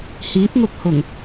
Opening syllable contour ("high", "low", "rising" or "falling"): rising